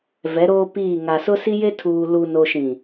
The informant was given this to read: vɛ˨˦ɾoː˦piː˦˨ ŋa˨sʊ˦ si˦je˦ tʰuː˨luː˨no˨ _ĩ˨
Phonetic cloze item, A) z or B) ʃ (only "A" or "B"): B